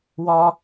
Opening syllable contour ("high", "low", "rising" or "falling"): high